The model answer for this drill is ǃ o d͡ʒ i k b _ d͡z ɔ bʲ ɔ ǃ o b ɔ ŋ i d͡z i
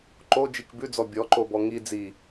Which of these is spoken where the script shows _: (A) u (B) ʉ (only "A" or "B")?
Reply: B